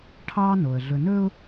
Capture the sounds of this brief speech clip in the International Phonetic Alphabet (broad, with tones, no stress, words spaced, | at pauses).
ʈʰɑː˦no˨ə̯ ɮɵ˨nɵː˦ʊ̯